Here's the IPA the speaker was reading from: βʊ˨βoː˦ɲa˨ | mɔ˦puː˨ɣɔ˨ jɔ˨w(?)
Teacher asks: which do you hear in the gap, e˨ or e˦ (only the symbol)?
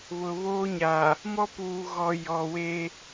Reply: e˦